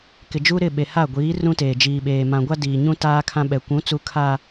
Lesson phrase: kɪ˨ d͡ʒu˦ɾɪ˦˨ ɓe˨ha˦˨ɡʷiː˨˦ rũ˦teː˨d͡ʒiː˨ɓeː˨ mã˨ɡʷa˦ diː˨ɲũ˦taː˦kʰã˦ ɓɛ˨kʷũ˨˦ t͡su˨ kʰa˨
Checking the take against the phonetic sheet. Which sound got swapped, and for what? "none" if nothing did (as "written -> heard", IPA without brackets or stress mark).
none